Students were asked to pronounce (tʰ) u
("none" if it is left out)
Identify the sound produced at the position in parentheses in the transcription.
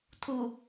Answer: tʰ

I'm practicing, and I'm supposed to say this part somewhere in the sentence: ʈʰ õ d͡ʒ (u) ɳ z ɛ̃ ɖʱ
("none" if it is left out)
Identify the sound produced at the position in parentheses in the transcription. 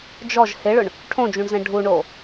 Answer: ũ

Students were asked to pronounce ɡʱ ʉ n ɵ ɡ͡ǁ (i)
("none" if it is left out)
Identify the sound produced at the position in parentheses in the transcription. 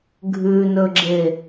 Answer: e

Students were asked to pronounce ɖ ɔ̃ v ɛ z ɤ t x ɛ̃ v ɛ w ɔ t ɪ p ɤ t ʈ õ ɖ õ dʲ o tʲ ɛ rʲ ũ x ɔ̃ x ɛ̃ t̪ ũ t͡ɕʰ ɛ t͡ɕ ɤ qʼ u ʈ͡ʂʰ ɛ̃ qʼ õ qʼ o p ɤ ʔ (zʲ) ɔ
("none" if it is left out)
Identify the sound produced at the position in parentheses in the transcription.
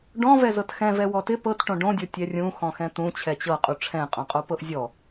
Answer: zʲ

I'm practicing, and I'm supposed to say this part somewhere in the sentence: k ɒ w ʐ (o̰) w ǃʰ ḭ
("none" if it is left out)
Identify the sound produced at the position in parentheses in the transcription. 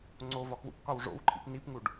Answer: o̰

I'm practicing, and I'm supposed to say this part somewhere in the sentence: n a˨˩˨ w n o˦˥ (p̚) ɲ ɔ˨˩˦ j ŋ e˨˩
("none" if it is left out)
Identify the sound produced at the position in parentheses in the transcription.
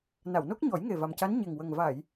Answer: k̚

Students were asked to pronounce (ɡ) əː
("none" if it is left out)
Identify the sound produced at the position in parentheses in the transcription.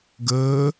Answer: ɡ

